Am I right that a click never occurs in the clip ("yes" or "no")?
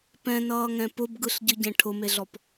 yes